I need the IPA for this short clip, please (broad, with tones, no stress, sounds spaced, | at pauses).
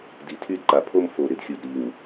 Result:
d i˨ tʰ y˦ d ǃ a˨ pʰ o˦ m f o˨ ɾ ɪ˨ d xʲ u˨ d ɾ i˨ ŋ